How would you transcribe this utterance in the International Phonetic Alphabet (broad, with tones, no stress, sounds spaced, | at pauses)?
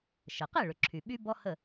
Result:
ʃ ə˩ q e˥˩ ɭ ʏ˩ ǁʰ y˩ ɓ y˧ b ɔ˥ h ə˥˩